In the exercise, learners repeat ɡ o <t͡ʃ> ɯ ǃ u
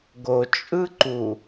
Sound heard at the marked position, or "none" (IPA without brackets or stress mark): t͡ʃʼ